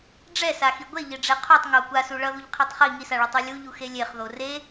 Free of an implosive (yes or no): yes